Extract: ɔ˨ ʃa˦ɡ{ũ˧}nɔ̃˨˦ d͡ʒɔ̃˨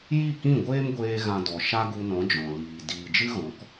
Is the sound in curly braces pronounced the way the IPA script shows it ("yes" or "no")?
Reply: no